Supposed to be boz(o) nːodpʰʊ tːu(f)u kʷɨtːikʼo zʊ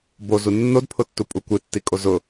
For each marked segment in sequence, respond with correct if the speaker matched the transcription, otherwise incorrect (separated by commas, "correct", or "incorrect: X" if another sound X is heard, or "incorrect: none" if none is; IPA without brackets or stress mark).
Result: incorrect: u, incorrect: pʼ